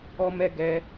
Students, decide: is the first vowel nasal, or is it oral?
oral